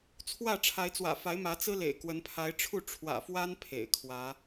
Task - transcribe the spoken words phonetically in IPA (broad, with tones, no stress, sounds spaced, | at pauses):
t͡sʰ w ä˥˨ ʈ͡ʂʰ a˨˦ ɪ̯ t͡s w ä̰˨˩ f a˨˦ ɪ̯ m ä˨˦ t͡s ɹ̩˦ l ḛ˨˩ ɪ̯ k w ə˨˦ n pʰ a˨˦ ɪ̯ ʈ͡ʂʰ u˥˨ ʈ͡ʂʰ w ä̰˨˩ f w a˦ n pʰ ḛ˨˩ ɪ̯ kʰ w ä˨˦